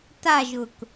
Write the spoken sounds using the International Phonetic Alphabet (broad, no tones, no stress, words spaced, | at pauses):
taʒʊk